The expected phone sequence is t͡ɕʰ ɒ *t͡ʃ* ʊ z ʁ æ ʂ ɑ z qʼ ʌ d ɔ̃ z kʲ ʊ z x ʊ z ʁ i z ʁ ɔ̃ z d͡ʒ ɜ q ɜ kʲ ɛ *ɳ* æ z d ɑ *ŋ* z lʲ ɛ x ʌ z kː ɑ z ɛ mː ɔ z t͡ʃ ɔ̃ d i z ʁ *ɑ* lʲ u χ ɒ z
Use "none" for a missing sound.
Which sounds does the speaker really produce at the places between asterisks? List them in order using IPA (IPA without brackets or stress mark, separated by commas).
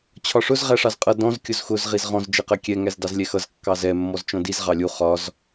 ʂ, ŋ, none, ɑ